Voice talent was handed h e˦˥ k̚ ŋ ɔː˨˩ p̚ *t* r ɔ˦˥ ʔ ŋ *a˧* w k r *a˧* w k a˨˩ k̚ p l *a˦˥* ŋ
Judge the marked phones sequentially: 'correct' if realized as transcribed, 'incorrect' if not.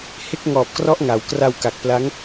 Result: incorrect: k, incorrect: a˩˦, correct, correct

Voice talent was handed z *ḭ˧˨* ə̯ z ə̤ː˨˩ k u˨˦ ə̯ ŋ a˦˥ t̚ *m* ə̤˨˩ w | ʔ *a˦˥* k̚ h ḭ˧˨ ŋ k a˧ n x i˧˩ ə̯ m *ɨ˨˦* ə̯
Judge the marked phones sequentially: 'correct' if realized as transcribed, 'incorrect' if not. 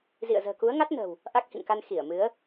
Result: correct, incorrect: n, correct, correct

